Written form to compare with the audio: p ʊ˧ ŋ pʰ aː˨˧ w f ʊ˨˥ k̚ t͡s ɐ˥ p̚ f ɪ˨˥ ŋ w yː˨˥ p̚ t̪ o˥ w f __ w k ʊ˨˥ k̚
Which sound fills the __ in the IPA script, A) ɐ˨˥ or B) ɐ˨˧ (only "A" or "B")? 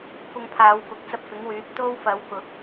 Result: B